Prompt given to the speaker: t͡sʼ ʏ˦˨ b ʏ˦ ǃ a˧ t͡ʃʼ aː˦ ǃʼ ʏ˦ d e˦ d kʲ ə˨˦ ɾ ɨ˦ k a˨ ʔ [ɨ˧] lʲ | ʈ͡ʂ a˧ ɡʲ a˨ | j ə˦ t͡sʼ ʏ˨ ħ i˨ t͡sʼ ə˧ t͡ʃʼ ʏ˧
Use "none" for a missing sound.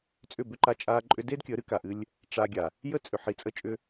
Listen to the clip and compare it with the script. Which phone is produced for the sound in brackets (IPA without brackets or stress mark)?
ɨ˧